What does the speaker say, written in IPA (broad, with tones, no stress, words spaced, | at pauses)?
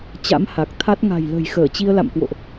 t͡ɕa̰˧˥mha˨˩k̚t̪ʰa˦˥t̚ ŋa̤˨˩jlə̤˨˩jxəː˧˩ t͡ɕi˧ə̯la̰˧˨mkwo̰˧˨ʔ